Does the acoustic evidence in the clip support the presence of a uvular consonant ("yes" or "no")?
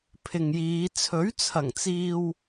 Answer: no